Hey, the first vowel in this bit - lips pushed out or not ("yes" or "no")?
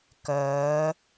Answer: yes